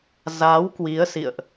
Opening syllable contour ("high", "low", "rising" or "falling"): rising